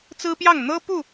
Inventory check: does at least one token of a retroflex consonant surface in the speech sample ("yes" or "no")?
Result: no